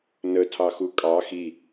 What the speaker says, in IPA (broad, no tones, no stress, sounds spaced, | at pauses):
n ə tʰ ɑ x u kʼ ɑ x i